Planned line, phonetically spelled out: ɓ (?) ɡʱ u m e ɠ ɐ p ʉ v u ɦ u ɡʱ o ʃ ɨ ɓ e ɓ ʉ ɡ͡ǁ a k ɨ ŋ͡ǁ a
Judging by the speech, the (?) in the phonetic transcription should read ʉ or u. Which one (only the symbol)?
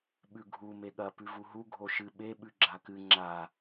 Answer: ʉ